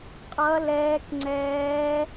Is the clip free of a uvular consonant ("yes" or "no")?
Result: no